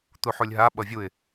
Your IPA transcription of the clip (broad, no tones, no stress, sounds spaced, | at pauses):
t̪ u ħ u lʲ ɦ a ɓ ʌ vʲ u ɪ̯